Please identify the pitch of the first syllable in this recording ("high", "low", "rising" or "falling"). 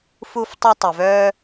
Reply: high